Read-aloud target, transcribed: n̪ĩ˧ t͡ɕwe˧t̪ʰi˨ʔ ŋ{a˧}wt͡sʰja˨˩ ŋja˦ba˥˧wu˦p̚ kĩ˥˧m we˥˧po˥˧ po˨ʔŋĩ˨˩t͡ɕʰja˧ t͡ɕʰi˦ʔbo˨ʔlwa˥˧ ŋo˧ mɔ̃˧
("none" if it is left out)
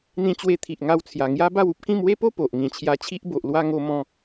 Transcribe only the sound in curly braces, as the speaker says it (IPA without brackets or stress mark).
a˧